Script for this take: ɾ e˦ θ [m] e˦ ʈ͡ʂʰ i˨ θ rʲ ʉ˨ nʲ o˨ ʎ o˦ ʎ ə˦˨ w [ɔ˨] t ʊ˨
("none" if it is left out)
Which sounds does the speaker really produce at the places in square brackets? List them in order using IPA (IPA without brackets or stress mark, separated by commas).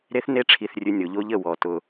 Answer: n, ɔ˨